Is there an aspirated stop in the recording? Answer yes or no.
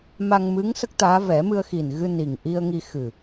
no